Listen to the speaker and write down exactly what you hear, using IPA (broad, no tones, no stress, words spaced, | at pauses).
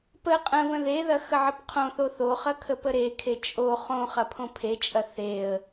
pə qʼə̃və̃ ðeðɐ xəʕəpqʰõθo θoχɐ kʰəpəɾekʰe t͡ʃʼo χõ χɐpʰõpʰet͡ʃʼɐ θeə̯